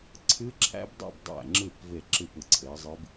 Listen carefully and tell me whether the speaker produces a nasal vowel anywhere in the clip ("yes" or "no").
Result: no